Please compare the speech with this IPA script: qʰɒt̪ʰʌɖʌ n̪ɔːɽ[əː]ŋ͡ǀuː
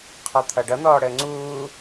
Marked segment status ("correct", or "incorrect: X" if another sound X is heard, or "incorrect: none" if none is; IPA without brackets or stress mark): correct